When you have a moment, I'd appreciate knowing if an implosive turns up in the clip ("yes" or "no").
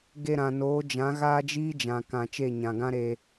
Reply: no